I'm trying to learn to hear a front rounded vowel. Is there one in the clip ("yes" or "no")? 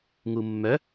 yes